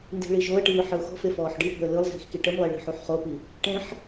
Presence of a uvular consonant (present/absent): present